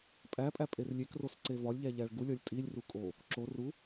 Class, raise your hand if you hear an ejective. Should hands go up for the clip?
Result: yes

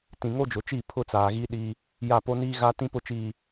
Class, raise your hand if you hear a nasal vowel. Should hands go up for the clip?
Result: yes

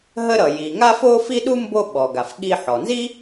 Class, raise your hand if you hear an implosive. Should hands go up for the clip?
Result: yes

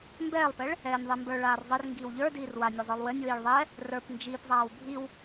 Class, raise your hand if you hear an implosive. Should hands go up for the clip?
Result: no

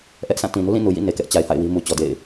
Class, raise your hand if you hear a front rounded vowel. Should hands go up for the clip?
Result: no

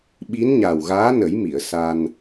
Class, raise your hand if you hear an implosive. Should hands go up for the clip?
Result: yes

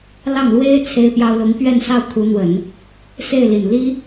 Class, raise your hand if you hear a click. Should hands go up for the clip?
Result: no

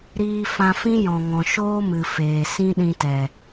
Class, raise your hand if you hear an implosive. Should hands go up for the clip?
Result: yes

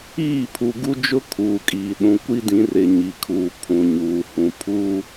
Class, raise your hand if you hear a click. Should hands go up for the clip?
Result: no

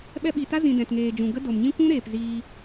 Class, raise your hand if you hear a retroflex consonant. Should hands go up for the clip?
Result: no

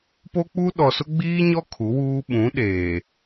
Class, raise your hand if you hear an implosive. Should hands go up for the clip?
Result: yes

